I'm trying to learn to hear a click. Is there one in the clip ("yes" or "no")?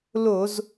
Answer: no